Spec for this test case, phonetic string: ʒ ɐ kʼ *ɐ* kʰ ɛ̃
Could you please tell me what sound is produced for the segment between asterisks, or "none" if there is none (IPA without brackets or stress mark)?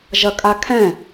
a